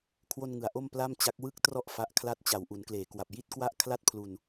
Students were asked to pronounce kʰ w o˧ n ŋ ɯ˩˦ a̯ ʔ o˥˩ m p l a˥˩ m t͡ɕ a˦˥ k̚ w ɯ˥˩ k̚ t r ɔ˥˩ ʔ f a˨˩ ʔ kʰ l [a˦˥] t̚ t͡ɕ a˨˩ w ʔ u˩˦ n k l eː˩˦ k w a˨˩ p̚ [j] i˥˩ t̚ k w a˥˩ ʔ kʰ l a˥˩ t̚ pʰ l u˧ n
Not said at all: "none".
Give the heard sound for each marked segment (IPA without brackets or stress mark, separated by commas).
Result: a˥˩, j